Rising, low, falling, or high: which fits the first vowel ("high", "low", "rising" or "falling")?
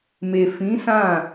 low